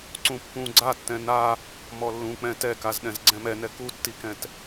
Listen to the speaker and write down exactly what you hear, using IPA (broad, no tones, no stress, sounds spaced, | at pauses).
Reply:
ǀ ũ pː ũ ɡ͡ǀ a tː ɛ̃ n a | m ɔ lː ũ k͡p ɛ̃ t ɛ k a z ɗ ɛ̃ z ɡ͡ǀ ɛ̃ m ɛ n ɛ k u tː i k ɛ̃ t